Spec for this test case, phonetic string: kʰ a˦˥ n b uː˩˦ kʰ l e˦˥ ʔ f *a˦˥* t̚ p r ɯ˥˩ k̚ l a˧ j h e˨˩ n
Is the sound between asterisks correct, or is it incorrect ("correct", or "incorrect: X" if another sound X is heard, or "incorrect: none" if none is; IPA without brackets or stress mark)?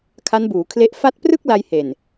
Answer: correct